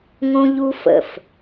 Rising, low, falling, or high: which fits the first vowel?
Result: high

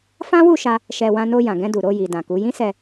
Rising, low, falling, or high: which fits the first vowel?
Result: high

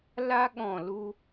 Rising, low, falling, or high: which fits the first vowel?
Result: high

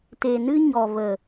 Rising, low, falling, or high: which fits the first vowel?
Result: low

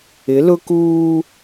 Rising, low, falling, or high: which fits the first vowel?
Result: rising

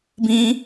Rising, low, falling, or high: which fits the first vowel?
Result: high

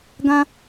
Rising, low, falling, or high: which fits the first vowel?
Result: high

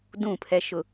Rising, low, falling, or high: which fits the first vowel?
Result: falling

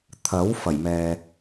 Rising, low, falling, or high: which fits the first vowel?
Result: rising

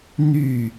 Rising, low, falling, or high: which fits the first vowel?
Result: falling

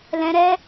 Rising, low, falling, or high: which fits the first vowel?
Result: high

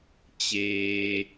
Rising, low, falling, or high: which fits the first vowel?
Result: low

